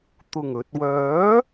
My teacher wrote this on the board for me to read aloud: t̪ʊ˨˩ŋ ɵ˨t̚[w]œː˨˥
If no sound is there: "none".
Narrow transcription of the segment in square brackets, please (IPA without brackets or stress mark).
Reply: w